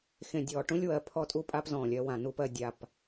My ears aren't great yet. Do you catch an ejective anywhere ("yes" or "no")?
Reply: yes